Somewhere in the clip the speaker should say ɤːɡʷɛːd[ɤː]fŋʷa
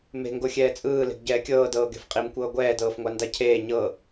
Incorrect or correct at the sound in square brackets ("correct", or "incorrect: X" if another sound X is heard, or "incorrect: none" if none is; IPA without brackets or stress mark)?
correct